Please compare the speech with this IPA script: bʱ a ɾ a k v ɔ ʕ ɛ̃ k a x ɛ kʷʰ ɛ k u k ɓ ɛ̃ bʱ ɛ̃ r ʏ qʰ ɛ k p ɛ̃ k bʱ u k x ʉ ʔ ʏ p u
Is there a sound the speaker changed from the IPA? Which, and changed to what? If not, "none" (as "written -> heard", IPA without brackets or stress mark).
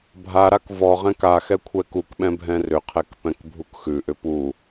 ʕ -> ʁ